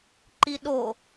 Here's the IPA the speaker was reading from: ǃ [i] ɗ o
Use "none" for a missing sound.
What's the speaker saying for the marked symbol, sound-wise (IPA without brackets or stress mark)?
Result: i